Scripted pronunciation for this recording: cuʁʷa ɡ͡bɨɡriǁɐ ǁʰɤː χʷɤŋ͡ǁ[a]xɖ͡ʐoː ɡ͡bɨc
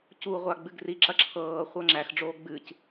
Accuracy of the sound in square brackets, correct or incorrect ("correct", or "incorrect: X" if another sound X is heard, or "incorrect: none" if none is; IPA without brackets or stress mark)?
incorrect: æ